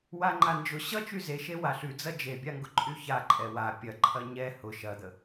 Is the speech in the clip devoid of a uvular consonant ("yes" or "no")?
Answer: yes